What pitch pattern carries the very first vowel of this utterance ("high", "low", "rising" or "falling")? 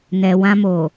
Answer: low